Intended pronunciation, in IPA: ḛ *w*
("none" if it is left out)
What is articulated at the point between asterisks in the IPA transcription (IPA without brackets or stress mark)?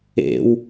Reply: w